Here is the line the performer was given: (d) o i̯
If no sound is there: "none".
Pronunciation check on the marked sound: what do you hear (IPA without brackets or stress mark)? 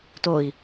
t